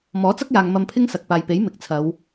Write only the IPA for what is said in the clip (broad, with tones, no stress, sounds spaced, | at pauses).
m ɔː˨˥ t͡s ɐ˥ k̚ j aː˨ ŋ m ɐ˧ m pʰ ɪ˥ ŋ s ɐ˨ k̚ p aː˨ j p e˨˥ j m ɪ˨ k̚ t͡sʰ ɐ˨˧ w